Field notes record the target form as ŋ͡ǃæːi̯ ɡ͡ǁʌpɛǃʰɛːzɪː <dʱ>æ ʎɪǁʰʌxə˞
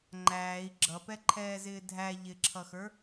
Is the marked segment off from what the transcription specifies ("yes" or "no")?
no